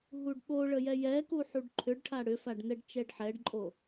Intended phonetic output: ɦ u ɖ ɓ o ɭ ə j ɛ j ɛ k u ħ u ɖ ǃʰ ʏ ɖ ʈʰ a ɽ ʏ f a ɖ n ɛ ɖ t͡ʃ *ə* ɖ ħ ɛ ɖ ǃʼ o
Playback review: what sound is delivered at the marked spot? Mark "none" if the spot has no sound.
ɛ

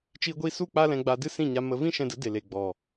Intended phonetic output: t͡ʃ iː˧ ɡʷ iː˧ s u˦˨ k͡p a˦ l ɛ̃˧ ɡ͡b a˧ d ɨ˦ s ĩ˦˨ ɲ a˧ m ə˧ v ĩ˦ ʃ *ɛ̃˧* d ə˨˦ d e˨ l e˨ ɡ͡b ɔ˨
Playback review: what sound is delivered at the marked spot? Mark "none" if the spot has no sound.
ɛ̃˧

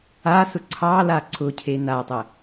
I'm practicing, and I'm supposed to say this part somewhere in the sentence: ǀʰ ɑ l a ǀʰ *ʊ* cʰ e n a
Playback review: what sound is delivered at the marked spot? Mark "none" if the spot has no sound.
ʊ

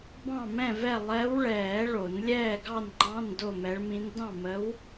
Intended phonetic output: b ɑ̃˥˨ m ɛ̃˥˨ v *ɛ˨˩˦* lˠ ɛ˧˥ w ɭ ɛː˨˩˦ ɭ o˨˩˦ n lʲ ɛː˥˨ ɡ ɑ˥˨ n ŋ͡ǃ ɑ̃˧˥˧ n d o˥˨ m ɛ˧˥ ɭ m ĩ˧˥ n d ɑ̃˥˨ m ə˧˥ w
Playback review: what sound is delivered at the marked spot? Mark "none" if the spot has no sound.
ɛ˥˨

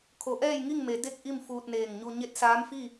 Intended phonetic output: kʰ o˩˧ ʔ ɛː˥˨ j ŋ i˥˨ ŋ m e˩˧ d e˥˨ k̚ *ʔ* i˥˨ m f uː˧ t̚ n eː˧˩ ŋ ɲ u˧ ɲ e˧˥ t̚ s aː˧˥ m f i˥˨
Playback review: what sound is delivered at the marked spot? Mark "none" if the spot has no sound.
ʔ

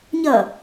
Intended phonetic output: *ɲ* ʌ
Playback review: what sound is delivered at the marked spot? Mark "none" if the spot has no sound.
ɲ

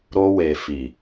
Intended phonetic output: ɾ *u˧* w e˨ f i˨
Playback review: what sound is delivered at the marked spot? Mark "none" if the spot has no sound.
o˧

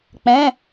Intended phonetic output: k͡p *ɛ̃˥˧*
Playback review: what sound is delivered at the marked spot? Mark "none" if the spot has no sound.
ɛ̃˧˥˧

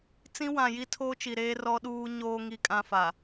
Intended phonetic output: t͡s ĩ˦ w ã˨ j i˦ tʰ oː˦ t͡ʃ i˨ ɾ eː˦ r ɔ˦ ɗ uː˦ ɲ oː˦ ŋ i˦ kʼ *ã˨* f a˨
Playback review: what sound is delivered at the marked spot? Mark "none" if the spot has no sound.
ã˦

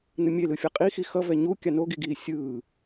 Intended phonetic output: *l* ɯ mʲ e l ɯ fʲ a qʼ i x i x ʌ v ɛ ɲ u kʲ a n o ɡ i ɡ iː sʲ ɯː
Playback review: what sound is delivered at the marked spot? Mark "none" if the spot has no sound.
n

